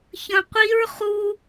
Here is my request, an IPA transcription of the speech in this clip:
ç ə̃ qʷ i ɹ χ u

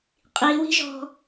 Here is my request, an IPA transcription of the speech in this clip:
qʼ i w i̤ ʒ ɔ̤

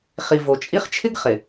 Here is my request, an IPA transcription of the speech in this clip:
χ i˨ v o˨ t͡ʃʼ i˦ χ t͡ʃʰ ɪ˦ ɡ χ ɪ˨

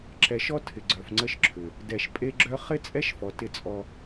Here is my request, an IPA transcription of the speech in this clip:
ǁ ɛ˨ ʃ ɔ˦ tʰ ɪ˨ ɡ͡ǀ œ˨ f ŋ͡ǀ ə˦ ʃ ǁʰ ʏ˨ | d ɛ˨ ʃ pʼ e˦ ɡ͡ǁ œ˦ χ ɪ˦ t͡sʼ ɛ˦ ʃ f ɔ˨ t ɪ˦˨ t͡sʼ ɔ˦

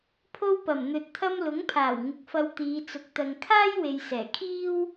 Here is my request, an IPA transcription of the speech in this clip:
pʰ o˥ w p ɐ˨˩ m n̪ ɵ˨ t̚ t̪ʰ ɐ˥ m l ʊ˨˥ ŋ pʰ aː˨˩ w ŋ ɪ˨˥ k̚ f ɐ˧ w t̪ iː˨˧ t͡s ʊ˨˥ k̚ t̪ ɐ˨ ŋ kʰ aː˥ j w e˨ j s ɛː˨˩ kʰ iː˥ w

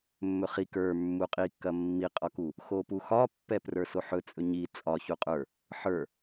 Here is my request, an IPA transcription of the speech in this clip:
mː ɵ χ i k ə˞ mː u qʼ i kː ɐ mː i qʼ ɒ k u | x o p u x ɒ pː ɛ p r ə˞ s o ħ ɵ t͡sʼ ɵ ɲ i t͡sʼ ɒ ç u qʼ ə˞ | ħ ə˞

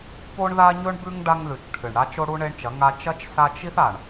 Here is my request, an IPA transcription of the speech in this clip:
p o˦ ɳ ð a˦ ɲ ɵ˦ ɳ b ʉ˦ ŋ ɖ a˦ ŋ ð ʉ˨ t͡ʃ ʈʰ ɨ˨ ɳ ɽ a˦ t͡ʃ o˦ ɽ u˦ ɳ e˦ ɳ t͡ʃ ɐ˨˦ ŋ a˦ t͡ʃ ɐ˦ t͡ʃ s a˦ t͡ʃ i˦ θ a˨ ɳ

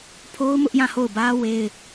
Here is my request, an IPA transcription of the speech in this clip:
pʰ o˦ ʊ̯ m ʊ˦ ʔ j ã˦˨ h o˦˨ ʊ̯ b ä˦ w e˦ ɪ̯

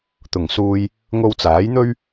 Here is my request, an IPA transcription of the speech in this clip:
t̪ ʊ˨˩ ŋ s uː˧ j | ŋ o˧ w t͡s aː˨˥ j n̪ ɵ˥ ɥ

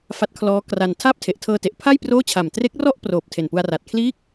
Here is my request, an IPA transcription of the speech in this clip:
f a˦˥ t̚ kʰ l ɔː˦˥ k r a˧ n tʰ aː˥˩ p̚ tʰ e˨˩ ʔ tʰ ɤː˧ t e˨˩ ʔ pʰ a˥˩ j p r oː˥˩ t͡ɕʰ a˨˩ m t r e˦˥ k̚ r ɔ˥˩ ʔ p r oː˨˩ p̚ tʰ e˨˩ n p u˧ a̯ r a˨˩ t̚ kʰ l iː˦˥ k̚

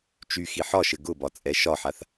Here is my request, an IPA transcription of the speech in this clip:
t͡ʃ y x i ħ ɒ ʃ ɘ ɡ ʊ b ɒ t͡sʼ ɛ ʃ ɒ ħ a θ

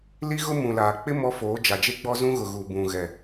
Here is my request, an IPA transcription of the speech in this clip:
l i˦ ɣ ʊ˦ m ũ˨ l aː˨ k͡p ɪ˦ m ɔ˦ f oː˨˦ d͡ʒ a˨ d͡ʒ e˦ ɡ͡b ɔ˦ z ũ˦ ɣ ʊ˨ ɣ u˨ b ũ˨ ɣ ɛ˨

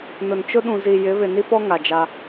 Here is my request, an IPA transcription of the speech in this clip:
n ʊ˨ n t͡ʃ ʊ˦ ɗ ũ˨ z i˨ j ɪ˨˦ β ɪ˨ n i˦ p ɔ˦ ŋ a˨ d͡ʒ a˦

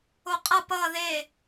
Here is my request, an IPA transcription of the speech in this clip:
o qʼ ʌ p ʌː ð e

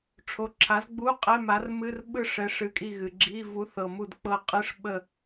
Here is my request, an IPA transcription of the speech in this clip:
ʈ͡ʂʰ o˨˥ ǁʰ a˨˥ z ɡ͡b u˧˥˧ qʼ ɛ˧˥˧ m a˨˥ r m ɨ˧˥˧ r ɓ ɯ˦˨ ʂ ɛ˨˥ ʂ ɨ˨˥ kʼ i˦˨ ɣ ɨ˨ ɡ͡ǁ i˧˥˧ v u˨˥ θ ɤ˨ m u˦˨ d k͡p ɤ˦˨ qʼ ɨ˧˥˧ ʂ ɓ ə˦˨

